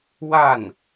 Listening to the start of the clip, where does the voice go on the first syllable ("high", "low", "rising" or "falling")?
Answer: falling